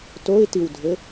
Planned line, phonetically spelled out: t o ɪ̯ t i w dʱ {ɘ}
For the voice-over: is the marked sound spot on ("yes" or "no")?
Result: yes